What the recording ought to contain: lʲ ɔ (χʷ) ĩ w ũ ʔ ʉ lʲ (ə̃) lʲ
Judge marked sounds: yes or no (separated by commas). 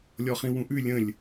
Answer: no, yes